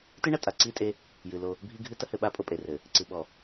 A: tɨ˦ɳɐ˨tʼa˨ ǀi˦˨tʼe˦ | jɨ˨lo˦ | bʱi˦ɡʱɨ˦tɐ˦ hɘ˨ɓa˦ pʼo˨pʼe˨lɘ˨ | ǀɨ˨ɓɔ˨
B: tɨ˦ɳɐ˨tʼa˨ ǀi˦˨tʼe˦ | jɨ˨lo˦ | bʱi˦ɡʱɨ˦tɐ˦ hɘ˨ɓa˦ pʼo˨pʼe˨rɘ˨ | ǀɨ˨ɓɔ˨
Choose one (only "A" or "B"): B